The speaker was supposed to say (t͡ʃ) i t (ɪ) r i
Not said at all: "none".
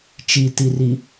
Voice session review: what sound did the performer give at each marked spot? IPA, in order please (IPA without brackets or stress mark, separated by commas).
t͡ʃ, i